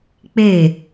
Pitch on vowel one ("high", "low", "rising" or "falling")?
falling